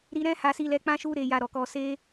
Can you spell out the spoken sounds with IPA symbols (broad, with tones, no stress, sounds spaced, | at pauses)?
ɾ i˧ ɾ ɛ̃˦ h a˧ s i˧ l ɛ˧ k͡p ã˦ ʃ u˦ ɾ e˧ j a˧ ɾ ɔ˨ k ɔ˧ s e˧